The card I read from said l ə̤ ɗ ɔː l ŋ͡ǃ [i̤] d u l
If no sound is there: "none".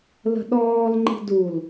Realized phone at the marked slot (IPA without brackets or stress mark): i̤